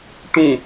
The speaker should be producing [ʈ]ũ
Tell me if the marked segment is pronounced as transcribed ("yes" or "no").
yes